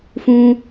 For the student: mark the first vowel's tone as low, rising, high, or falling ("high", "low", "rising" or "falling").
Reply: high